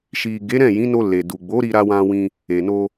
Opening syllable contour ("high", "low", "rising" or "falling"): low